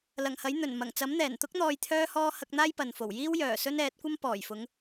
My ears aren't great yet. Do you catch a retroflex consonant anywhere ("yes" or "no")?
no